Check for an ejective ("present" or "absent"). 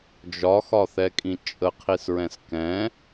present